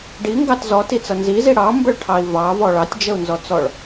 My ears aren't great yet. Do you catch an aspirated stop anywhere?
yes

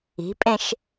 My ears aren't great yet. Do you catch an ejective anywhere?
yes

